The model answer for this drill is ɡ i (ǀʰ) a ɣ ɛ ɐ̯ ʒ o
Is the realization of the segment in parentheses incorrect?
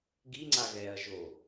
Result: yes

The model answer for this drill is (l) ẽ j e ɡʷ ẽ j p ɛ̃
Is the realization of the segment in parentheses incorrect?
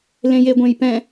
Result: no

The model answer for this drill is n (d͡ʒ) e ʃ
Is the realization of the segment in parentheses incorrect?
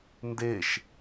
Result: yes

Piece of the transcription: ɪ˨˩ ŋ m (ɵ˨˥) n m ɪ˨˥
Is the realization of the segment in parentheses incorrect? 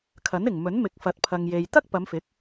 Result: no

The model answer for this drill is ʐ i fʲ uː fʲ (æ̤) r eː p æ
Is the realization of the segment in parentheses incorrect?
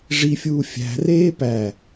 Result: no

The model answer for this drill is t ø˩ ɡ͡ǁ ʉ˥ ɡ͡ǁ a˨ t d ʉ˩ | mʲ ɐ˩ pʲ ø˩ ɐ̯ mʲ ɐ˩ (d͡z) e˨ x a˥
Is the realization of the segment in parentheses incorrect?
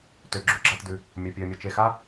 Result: yes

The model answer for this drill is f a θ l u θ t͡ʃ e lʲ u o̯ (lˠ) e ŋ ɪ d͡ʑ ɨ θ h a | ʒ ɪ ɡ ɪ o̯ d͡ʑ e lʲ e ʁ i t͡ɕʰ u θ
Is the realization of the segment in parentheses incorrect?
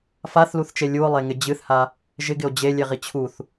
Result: no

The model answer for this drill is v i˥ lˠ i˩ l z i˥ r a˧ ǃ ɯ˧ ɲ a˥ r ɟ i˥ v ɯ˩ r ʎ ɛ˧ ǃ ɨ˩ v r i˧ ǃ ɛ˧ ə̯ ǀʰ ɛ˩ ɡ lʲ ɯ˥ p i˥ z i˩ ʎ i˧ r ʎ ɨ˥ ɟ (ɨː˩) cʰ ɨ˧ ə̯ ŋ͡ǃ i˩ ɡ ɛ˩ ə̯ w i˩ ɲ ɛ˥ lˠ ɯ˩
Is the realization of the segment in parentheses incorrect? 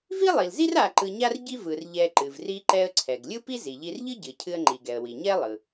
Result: yes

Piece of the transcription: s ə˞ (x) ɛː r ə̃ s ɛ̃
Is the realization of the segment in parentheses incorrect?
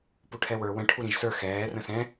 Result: no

